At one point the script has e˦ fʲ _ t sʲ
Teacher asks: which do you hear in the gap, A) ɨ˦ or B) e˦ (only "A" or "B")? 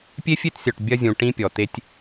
B